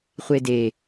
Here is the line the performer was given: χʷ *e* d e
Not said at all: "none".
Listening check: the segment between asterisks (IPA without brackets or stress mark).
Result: e